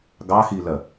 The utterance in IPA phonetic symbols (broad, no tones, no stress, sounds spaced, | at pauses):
ɡ ɑ x i l ɜ